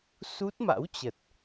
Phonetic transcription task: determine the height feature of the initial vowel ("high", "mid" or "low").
high